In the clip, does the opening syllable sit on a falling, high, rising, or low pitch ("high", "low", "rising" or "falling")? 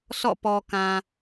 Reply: falling